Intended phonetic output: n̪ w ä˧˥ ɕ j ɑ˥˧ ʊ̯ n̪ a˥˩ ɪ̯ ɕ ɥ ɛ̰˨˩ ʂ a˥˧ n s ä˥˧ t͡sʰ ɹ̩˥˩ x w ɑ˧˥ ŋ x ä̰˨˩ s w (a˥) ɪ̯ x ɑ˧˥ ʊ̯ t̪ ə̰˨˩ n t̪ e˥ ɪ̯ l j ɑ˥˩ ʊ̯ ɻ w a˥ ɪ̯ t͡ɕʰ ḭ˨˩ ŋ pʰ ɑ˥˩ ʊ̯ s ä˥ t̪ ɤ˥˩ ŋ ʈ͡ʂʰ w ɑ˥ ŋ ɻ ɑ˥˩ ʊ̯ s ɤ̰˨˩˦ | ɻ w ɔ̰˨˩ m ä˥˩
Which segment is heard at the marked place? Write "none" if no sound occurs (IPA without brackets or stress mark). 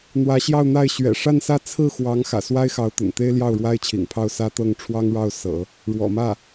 a˥